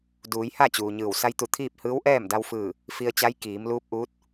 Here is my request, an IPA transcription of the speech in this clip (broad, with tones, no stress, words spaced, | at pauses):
duː˩˧jha˥˨ t͡ɕuː˩ɲɯː˧˩w sa˧˥jt̪u˧˩t̪ʰiː˥˨p̚ hɯː˧˥wʔɛː˥˨m da˧w fɯː˧˩ | fi˧ə̯t͡ɕa˧˥j kiː˩˧mluː˧˥p̚ʔuː˧˥t̚